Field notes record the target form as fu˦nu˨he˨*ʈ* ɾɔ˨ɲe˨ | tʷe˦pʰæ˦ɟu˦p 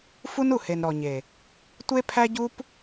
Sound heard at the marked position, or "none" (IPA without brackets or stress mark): n